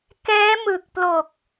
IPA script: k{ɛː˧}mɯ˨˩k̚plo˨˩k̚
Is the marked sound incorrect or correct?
incorrect